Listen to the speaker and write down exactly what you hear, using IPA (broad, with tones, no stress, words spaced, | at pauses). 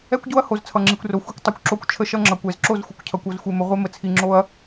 ɛ˦kʷɟo˦ɐ̯ho˨z t͡sʰʌ˨ŋ͡ǁi˨kʷro˨ xʷe˦kʷ tˤo˨kʷǁo˦kʷ t͡ʃʰə˦ʃʌ˦ŋ͡ǁʌ˨kʷ ɛ˨zǁo˦˨zxʷə˨kʷcʰʌ˨kʷ o˨z xʷe˨mə˨ ʁʷe˦mə˨t͡sʰi˨ŋ͡ǁo˦ɐ̯